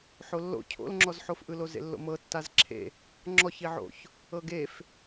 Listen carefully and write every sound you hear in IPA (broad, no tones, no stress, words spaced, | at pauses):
ħolːo̰ cʰo̰lŋ͡ǁɔzħofʔɯ lozḛlːo̰mɤ tːazǁʰḛ | ŋ͡ǁɔçiʕo̰ç | ɤɡef